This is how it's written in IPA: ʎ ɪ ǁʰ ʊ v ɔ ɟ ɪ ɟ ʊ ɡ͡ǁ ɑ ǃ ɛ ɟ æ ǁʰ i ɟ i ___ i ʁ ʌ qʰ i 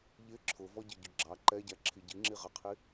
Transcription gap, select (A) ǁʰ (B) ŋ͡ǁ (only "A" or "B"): B